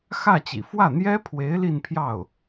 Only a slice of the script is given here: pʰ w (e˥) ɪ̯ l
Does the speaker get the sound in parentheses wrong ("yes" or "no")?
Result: yes